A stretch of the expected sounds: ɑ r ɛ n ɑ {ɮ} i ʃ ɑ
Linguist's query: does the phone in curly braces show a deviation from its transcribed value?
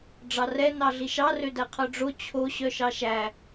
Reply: no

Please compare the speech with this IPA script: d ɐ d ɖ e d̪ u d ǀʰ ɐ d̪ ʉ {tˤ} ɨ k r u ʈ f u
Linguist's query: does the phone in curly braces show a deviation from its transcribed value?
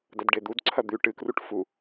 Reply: yes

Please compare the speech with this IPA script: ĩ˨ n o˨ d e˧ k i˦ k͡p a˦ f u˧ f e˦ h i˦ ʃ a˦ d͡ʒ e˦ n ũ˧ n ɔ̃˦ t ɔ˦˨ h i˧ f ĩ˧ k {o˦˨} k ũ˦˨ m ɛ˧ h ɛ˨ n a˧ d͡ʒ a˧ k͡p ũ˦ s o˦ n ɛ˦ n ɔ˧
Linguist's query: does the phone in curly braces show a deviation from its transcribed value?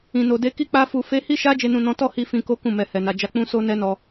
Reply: yes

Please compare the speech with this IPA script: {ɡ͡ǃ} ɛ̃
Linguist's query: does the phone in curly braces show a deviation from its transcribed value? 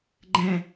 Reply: no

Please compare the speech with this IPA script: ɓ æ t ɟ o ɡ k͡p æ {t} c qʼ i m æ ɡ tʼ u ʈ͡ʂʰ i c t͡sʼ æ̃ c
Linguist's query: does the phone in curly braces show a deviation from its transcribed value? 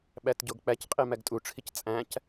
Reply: yes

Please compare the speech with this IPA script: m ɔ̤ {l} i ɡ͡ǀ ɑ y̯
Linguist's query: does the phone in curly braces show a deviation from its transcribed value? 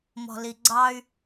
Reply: no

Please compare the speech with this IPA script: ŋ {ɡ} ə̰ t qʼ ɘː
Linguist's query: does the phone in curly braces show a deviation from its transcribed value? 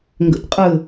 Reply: no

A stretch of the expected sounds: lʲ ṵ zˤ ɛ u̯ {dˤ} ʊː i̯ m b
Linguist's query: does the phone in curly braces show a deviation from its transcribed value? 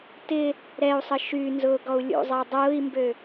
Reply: no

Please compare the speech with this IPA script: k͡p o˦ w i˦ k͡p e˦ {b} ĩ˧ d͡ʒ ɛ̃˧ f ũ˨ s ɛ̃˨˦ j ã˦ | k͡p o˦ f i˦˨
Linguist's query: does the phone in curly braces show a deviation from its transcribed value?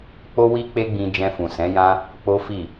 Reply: yes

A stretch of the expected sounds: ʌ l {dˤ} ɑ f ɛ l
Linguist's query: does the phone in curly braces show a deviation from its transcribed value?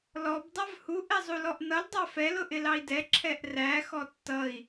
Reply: no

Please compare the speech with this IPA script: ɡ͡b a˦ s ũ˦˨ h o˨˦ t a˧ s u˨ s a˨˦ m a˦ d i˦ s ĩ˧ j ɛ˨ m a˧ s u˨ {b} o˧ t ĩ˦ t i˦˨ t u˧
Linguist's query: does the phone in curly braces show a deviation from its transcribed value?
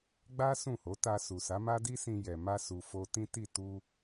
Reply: yes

